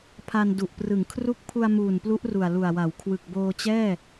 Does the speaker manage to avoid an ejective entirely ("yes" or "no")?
yes